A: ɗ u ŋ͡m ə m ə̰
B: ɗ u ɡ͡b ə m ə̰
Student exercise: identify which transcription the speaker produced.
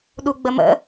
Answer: B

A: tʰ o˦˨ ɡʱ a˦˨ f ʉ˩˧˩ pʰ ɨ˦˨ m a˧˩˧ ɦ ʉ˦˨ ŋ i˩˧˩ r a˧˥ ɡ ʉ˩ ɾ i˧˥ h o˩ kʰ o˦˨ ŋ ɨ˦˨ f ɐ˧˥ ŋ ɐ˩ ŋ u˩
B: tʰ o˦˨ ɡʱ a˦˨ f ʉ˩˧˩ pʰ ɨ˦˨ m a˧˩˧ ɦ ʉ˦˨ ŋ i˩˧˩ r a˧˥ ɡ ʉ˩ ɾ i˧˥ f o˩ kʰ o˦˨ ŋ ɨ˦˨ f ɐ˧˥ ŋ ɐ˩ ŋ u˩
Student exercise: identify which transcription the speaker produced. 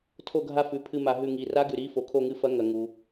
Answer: B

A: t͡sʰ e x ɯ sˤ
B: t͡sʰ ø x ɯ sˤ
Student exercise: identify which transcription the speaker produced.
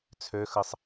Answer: B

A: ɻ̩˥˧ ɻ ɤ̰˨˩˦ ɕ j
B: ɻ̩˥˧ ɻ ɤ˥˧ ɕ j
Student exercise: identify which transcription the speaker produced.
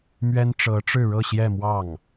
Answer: B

